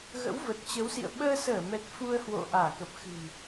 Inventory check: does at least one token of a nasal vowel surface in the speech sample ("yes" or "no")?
no